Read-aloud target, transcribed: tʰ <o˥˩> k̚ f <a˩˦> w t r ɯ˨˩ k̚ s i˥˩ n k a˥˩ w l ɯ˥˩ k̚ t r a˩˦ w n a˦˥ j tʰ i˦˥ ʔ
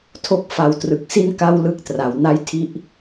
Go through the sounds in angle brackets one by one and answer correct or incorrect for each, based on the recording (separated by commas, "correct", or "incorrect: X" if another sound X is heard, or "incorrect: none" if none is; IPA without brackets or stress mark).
incorrect: o˦˥, correct